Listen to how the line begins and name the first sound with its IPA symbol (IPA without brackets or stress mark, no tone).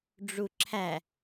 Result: ɖ͡ʐ